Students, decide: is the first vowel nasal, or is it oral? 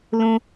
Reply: nasal